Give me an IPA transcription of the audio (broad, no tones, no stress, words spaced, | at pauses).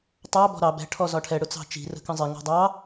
tˤɑ bɔ̤ɾɑ bɛ̤ ʈʰɔzɒʈʰɛ ɽʊt͡sɑ̤t͡ʃi̤ rə̤kə̃zˤɪ ŋɔ̤dˤɑ